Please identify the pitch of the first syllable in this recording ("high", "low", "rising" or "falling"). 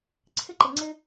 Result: high